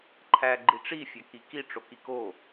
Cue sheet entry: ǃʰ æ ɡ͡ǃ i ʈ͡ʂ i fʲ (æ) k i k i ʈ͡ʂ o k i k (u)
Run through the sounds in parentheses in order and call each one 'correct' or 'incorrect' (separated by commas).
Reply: correct, incorrect